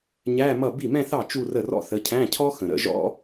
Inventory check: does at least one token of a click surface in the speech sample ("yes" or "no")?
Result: no